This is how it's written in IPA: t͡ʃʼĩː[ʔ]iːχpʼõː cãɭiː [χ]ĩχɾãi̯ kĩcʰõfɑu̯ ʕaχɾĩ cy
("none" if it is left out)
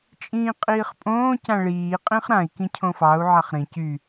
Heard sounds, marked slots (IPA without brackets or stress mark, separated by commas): qʼ, qʼ